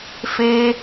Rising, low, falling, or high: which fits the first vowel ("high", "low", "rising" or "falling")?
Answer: high